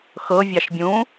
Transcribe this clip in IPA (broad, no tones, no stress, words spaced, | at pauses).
xɤ vʲɑʃbʲũ